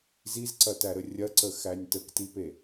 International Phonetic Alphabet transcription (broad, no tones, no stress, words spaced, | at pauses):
zizǀɐtæɾə rʲɐǀəxænʲ təktipe